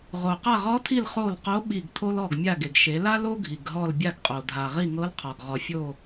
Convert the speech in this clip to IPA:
ʁo˩qa˦˨ʁɔ˧˥tʰi˦˨l χo˦˨lqo˧˥ ɓi˦˨ɡtʰo˥lɔ˦˨ɡ mʲa˦˨ɡe˩ɡ ʃe˩˧la˥l o˥ɡʱi˩ɡ ɦɔ˦˨lbʲa˦˨ɡqʼo˩ dʱa˩ ʁi˦˨ŋɤ˧˥lqʰɔ˩ɡ ʁɔ˩fʲo˦˨

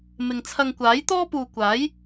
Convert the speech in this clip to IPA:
mɪ˨ŋt͡sʰɐ˧ŋ kʷaː˨˥jt̪ɔː˥puː˨ kʷaː˨˥j

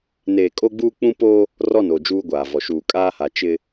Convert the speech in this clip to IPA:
neː˨ kʼo˦ɡ͡buː˦k͡pũ˦poː˦ | rɔ˦˨noː˨ d͡ʒuː˦ɡʷaː˨vɔ˨ ʃuː˨kʼaː˦ha˨ t͡ʃɪ˦

